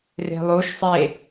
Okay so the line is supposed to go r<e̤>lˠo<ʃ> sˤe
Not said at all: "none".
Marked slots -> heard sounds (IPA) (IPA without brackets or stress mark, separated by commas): e̤, ʃ